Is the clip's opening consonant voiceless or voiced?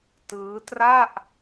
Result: voiceless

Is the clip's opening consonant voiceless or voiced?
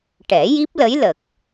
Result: voiceless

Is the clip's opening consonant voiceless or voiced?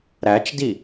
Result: voiced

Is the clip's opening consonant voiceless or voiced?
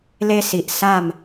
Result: voiced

